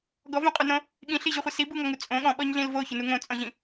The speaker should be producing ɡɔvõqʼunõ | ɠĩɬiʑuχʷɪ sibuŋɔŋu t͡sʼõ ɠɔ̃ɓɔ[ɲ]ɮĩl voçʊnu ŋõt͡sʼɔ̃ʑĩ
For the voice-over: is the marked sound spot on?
yes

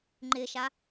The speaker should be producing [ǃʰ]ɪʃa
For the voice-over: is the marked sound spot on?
no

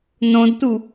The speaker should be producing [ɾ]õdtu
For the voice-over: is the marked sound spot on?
no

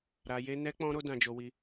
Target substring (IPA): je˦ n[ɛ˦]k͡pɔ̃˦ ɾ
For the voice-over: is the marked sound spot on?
yes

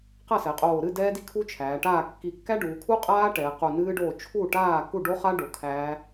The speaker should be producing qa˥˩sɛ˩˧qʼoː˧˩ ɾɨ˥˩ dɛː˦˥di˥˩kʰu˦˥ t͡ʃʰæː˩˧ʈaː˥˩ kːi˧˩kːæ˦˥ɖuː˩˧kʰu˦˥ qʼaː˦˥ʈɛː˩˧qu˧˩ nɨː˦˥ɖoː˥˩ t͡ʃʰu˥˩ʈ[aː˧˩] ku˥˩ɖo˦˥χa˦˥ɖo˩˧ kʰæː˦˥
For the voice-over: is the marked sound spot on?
no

